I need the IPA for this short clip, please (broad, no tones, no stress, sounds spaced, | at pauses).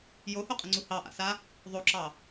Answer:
j o h o qʼ ə ŋ͡ǀ u h ɑ ʔ a̰ s a | ðˤ o ǁ ɑ